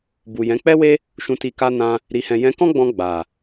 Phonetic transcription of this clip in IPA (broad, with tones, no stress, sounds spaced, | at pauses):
b u˨ j ɛ̃˨˦ k͡p ɛ˦ w e˦ | ʃ ũ˧ t i˧ k a˧ n ã˧ | ɾ i˨ h ɛ̃˨ j ɛ̃˧ k ɔ̃˦ ɡ͡b ɔ̃˧ ɡ͡b a˨